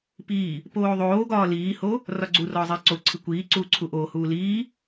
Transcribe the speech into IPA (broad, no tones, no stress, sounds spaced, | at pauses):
p iː | p oː ðˤ oː ɡ ɒː l iː h o | r ɒ ɡ͡ǀ u r ɒː zˤ iː ǀ o ǀʰ i kʷ iː ǀ uː ǀʰ u ʔ oː h uː l iː